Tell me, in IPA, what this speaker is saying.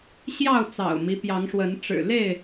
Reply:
ɕ j ɑ˥˨ ʊ̯ t͡s ɑ̰˨˩ ʊ̯ m i˦ p j ɑ˨˦ ŋ ʂ w ə˨˦ n ʈ͡ʂ ɻ̩˨˩ l e˥˨ ɪ̯

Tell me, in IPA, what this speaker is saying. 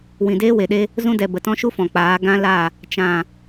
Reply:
w ĩ˨ d eː˦ w e˨ ɗ e˦ | z ũ˧ d ɛ˨ b ə˨ t ɔ̃˦ ʃ u˦ f ɔ̃˨ k͡p aː˨˦ ɡ ã˦ l a˦˨ | t͡ʃ ã˨

